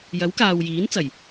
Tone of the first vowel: rising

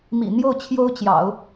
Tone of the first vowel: low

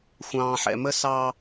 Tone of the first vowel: low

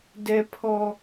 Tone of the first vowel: high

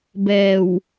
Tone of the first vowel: low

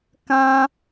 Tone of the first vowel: high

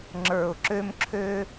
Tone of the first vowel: low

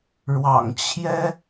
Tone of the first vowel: low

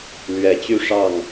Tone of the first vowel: low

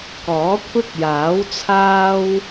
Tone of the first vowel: rising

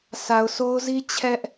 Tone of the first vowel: low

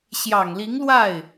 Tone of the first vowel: low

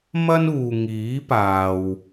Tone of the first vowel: high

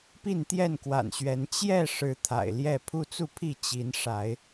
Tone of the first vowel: falling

